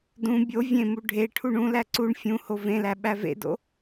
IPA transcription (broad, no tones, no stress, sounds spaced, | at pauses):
d ũ bʲ o vʲ ẽ m u ɖʱ e ʈʰ u ɳ ũ l æ ǀ u ɳ fʲ ũ h o v ẽ l æ ɓ æ v ḛ d o̰